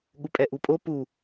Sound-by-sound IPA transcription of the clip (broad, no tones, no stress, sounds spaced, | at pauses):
ɠ u pʼ ɛ ʔ u pʼ o p u